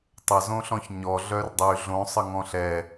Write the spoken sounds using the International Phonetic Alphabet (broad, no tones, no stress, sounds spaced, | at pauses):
tˤ ə z õ ɬ ɔ̃ ç ɲ ɔ ɮ œ r dˤ y ɮ õ sˤ ə ŋ ɔ̃ ɬ ɛ